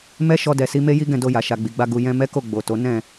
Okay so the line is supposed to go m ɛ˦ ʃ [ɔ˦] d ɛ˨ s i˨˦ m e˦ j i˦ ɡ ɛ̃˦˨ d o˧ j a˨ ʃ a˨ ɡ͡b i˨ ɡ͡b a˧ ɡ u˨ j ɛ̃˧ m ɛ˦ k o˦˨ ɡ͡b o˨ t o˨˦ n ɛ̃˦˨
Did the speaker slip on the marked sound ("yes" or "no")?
yes